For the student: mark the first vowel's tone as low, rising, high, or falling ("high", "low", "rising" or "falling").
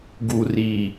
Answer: low